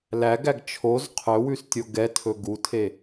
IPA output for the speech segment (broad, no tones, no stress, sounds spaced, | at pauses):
l æ ɡ æ ɡ t͡ʃʰ o z qʰ ɵ w ʉ s tʲ o ɡ ɛ tʰ ɵ ɡ u tʰ e